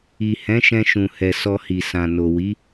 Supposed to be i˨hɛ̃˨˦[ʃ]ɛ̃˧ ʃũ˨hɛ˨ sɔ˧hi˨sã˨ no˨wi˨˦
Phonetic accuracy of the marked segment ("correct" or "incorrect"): correct